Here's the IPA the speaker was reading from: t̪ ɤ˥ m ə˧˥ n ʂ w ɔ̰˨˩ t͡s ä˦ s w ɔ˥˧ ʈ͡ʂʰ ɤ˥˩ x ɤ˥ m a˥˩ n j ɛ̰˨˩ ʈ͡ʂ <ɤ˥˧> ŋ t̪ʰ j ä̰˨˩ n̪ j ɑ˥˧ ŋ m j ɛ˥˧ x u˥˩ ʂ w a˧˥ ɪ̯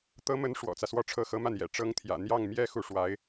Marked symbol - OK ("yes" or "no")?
no